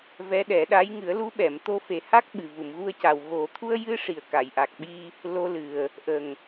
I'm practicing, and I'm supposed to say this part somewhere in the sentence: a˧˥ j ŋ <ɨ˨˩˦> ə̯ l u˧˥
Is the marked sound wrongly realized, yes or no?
no